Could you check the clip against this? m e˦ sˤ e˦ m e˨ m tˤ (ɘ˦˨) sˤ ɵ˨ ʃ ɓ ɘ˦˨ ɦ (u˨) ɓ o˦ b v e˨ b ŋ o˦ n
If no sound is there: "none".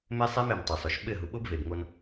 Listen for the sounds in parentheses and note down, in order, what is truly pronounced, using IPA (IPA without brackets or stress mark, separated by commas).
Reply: ɘ˨, u˨